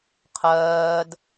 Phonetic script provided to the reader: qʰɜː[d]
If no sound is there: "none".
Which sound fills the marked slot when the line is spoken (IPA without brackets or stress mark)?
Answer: d